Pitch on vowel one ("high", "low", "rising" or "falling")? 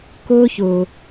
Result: high